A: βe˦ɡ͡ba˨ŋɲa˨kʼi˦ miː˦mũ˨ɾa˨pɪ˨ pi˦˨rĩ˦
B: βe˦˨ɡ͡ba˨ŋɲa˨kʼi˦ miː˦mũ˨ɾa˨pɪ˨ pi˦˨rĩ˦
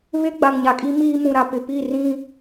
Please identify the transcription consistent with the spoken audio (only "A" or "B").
A